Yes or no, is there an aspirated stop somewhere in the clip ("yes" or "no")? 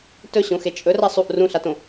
no